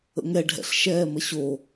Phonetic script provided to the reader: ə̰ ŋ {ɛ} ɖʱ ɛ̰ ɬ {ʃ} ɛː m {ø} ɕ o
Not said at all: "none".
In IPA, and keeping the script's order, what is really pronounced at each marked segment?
ɛ, ʃ, ə

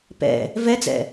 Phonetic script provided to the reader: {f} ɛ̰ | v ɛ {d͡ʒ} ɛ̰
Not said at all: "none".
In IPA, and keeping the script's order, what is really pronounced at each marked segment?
p, d͡z

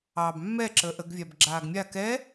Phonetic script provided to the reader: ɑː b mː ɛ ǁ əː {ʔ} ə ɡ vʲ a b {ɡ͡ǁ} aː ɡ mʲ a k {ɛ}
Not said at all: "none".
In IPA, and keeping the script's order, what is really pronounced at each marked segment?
ʔ, ɡ͡ǁ, ɛ

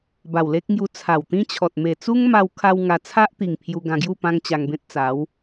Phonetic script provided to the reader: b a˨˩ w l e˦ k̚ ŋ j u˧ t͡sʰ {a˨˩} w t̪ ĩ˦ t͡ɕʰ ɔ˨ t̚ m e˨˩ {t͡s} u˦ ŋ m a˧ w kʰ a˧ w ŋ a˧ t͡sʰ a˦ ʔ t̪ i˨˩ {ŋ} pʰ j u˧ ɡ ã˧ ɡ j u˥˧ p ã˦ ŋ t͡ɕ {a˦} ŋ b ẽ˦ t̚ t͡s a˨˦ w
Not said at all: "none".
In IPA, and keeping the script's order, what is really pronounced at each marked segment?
a˨˩, t͡s, ŋ, a˧

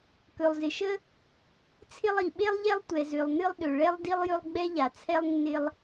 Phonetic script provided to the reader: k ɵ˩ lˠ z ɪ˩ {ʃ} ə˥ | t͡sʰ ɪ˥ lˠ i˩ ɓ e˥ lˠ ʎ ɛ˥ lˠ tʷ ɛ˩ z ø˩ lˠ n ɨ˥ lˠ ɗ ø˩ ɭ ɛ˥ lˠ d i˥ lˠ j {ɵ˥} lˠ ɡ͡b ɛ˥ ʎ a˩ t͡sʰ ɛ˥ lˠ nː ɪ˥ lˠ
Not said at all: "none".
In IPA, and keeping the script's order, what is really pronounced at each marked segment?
ʃ, ɵ˥

